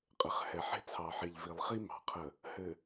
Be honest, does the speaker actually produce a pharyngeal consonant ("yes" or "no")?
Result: yes